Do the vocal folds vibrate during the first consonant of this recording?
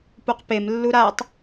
no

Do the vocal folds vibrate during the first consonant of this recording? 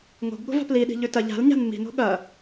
yes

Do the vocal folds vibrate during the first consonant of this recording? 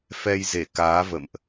no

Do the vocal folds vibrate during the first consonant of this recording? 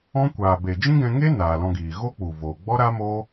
no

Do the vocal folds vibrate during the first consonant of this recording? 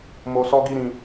yes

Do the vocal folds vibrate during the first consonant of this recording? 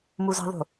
yes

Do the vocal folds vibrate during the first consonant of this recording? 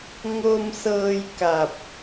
yes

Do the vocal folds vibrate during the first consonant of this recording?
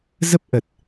yes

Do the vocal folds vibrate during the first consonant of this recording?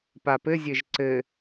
no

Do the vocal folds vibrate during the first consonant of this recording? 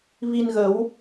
yes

